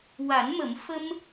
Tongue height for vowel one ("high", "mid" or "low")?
low